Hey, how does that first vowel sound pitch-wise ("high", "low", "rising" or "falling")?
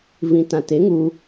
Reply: low